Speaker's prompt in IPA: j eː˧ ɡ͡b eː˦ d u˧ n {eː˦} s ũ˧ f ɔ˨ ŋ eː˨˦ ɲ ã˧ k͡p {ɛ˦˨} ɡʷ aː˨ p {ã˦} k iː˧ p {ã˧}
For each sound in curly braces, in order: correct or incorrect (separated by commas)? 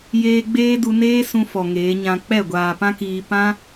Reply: correct, correct, correct, incorrect